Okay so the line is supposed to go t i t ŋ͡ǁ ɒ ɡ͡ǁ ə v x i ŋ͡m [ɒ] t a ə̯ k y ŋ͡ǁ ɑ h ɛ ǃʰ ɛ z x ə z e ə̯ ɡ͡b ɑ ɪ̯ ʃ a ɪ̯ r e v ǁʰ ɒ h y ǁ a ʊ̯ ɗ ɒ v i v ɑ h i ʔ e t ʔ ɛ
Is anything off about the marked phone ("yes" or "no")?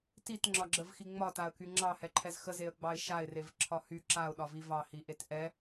no